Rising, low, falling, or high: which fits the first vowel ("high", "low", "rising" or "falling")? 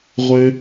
high